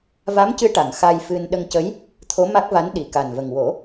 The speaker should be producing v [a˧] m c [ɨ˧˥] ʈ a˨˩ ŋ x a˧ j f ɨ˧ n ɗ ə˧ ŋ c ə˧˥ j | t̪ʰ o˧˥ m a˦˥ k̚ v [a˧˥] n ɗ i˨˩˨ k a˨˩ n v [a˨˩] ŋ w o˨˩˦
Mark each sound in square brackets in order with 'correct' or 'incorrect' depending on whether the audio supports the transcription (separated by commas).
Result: incorrect, correct, correct, incorrect